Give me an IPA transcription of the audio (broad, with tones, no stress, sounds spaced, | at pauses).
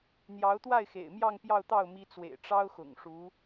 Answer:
n̪ j ɑ˧˥ ʊ̯ t̪ w a˥˩ ɪ̯ x ḛ˨˩ ɪ̯ m j ɑ˥˧ ŋ p j ɑ˥˧ ʊ̯ t̪ ɑ˥˩ ʊ̯ m i˧˥ t͡s w ḛ˨˩ ɪ̯ ʈ͡ʂ ɑ˥ ʊ̯ x ʊ̰˨˩ ŋ ʂ u˧˥